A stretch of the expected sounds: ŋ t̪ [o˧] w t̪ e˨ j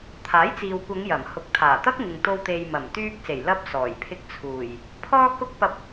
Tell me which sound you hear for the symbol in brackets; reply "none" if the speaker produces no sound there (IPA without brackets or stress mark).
o˧